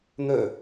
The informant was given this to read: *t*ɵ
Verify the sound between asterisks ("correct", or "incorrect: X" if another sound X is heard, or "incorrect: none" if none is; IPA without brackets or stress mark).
incorrect: n̪